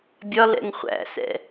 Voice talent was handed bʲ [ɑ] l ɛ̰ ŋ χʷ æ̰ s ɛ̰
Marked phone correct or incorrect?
incorrect